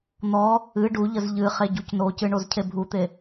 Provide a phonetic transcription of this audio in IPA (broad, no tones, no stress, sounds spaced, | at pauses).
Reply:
n̪ ɔ | ɨ ɖ u ʎ ə z ʎ ɨ χ e ɟ u c n o c ɨ ɳ o z cʰ e bʱ u t̪ e